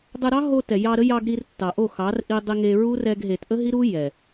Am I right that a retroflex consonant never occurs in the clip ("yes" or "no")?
yes